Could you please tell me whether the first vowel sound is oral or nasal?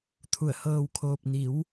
oral